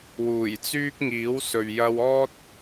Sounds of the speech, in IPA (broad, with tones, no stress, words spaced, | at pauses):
wuː˨˩jt͡syː˥k̚ ŋiː˨˥wsɵ˨ɥ jɐ˧w ɔː˥t̚